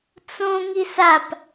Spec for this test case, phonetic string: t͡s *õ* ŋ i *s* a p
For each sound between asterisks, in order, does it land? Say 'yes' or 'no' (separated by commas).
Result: yes, yes